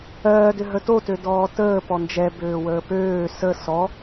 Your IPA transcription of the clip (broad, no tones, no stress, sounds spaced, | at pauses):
ɜː d ø ɦ ə t o t ø d ɔː t əː p ɔ n d͡ʒ ɛ b øː w əː p øː s ə s ɔ